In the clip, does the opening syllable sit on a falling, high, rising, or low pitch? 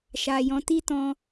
low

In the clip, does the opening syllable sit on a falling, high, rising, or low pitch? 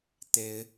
rising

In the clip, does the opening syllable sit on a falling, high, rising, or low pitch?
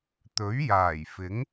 rising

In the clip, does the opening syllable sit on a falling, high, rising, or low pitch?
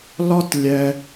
high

